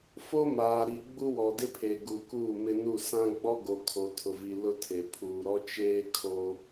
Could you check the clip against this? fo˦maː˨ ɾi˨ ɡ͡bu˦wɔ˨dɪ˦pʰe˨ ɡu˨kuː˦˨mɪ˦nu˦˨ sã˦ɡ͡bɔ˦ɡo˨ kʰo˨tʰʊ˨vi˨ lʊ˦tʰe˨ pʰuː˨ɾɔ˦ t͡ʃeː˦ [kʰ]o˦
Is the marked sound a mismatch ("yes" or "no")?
no